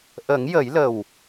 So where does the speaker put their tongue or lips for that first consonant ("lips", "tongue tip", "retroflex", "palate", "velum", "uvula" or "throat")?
throat